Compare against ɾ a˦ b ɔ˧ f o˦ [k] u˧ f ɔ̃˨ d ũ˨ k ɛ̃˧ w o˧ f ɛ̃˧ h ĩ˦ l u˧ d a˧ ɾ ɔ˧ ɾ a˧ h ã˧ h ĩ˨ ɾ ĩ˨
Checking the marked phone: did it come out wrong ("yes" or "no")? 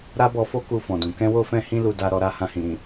no